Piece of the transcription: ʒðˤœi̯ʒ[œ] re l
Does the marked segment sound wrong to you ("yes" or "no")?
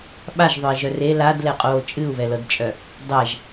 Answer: no